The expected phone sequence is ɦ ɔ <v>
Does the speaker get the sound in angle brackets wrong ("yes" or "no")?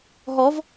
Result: no